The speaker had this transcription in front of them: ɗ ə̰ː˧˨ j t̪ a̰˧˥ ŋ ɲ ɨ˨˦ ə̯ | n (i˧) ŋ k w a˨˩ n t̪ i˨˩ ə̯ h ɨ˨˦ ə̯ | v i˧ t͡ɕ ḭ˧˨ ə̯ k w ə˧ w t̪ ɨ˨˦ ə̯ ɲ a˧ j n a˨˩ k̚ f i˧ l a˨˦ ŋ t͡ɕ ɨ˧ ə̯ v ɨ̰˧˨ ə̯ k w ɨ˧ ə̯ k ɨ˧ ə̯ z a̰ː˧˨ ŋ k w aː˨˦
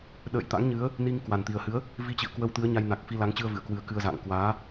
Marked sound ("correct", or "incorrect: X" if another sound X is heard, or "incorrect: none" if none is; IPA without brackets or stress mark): correct